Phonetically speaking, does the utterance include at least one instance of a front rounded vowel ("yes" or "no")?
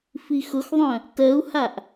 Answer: yes